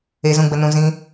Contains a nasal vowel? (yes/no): yes